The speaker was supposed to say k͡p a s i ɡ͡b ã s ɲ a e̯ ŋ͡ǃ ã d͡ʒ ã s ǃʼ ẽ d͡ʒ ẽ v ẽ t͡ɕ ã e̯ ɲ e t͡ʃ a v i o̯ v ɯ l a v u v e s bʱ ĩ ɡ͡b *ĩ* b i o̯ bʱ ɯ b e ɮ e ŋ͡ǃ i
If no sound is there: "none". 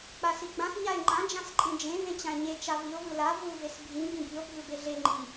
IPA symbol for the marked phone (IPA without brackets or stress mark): ĩ